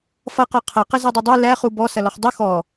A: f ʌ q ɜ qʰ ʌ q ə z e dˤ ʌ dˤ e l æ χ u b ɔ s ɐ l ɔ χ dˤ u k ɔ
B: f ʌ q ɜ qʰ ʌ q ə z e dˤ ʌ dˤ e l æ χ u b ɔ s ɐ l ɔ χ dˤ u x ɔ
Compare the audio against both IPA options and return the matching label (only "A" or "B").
B